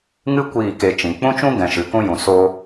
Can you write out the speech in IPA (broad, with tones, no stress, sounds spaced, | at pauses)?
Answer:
ŋ ɨ˦ kʷ iː˦˨ k e˧ t͡ʃ ĩ˨ k͡p ũ˦ t͡ʃ ũ˦ ɡ ɛ̃˨ ʃ ɨ˨ k ũ˦ j ũ˨ s o˦